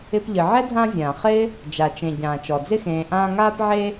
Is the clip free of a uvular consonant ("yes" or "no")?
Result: no